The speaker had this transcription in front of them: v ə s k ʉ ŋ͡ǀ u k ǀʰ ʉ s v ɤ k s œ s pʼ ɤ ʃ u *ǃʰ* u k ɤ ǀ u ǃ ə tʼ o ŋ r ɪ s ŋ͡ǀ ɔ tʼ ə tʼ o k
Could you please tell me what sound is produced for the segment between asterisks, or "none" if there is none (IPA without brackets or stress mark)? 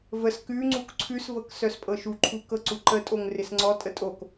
ǃʰ